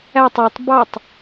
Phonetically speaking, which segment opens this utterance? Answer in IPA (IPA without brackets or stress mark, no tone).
æ